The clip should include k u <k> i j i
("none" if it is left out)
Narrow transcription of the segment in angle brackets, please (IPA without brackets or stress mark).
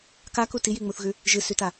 t